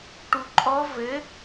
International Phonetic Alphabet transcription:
ʈuǃʼɔ vɘ

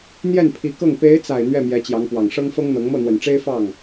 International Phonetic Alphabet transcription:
n̪jɛ˥˩npʰi˧˥kɤ˥˩ŋ pe˧˥ɪ̯t͡sa˨˩ɪ̯ n̪ɥɛ˥˩mjɛ˧˥t͡ɕjɑ˧˥ŋpwɑ˨˩ŋ ʂɤ˥ŋfɤ˥ŋn̪ɤ˧˥ŋ mɤ˥˩n̪wə˨˩nʈ͡ʂe˥ɪ̯ fɑ˥˩ŋ

